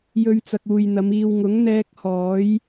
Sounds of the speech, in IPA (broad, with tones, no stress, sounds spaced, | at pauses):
j ɵ˧ ɥ t͡s ɐ˨ k̚ uː˨ j n̪ ɐ˨˧ m iː˨ w ŋ ʊ˨˥ ŋ n̪ ɛː˧ k̚ h ɔː˨˥ j